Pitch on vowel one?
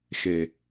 low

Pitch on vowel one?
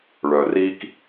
low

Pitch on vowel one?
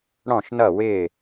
falling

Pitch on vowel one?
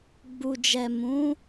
low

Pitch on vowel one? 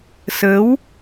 rising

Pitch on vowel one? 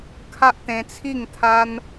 high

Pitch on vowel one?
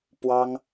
high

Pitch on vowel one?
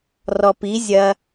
low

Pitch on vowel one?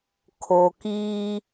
low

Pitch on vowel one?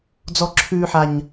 high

